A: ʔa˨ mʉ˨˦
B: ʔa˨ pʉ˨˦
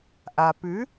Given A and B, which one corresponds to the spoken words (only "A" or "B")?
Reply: B